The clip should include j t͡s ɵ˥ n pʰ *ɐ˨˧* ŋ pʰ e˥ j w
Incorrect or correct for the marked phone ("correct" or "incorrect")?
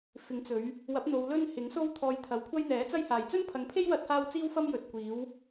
correct